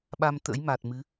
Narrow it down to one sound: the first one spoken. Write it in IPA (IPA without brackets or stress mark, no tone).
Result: ɓ